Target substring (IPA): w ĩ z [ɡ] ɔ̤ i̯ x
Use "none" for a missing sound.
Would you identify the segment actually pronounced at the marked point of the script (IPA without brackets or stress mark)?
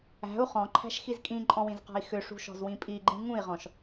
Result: q